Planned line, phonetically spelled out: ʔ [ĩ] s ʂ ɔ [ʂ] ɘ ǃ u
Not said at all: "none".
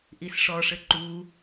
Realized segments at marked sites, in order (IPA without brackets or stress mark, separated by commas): i, ʂ